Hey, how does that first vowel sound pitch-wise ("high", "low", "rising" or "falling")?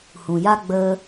low